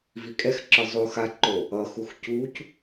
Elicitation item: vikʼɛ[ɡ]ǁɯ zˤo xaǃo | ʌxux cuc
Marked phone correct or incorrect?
incorrect